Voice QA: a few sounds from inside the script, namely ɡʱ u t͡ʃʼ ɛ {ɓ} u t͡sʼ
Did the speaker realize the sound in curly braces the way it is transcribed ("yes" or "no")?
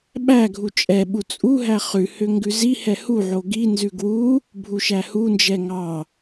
yes